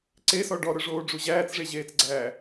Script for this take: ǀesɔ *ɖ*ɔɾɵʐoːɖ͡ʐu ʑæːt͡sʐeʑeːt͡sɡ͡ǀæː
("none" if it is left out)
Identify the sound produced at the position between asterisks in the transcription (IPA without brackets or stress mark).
ɖ